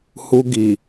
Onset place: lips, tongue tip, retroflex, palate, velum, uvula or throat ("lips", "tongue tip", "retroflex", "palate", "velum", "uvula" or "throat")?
throat